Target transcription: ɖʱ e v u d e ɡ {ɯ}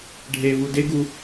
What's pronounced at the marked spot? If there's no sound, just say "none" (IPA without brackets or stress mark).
u